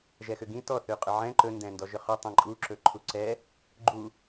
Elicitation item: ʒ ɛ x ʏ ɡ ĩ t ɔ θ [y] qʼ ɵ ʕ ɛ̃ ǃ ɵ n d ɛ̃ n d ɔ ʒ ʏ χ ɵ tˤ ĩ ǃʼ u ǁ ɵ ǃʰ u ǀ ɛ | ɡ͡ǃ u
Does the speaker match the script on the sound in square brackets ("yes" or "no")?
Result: yes